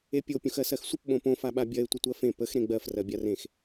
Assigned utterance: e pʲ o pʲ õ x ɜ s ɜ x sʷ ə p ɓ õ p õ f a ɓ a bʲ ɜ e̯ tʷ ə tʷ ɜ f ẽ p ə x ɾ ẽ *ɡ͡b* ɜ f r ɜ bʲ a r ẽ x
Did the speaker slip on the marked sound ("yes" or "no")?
no